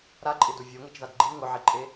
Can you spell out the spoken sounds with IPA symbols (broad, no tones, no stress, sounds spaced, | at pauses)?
ɾ a ǃʼ ɪ d ʊ vʲ o ŋ e t͡ʃ ð a d ɡ͡ǃ i ŋ ʊ ʕ i ǃʼ e